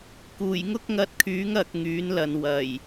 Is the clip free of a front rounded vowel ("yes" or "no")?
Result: no